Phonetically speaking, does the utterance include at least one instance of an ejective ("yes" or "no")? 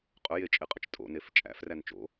yes